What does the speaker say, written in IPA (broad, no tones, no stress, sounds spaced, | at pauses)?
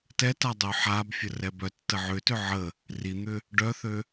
t ɛ t a dˤ ø ħ a b fʲ ə r ɛ b œ tː ə ʕ ʏ t ʏ ʕ ə | r i n̪ ʏ | ɖ œ θ ø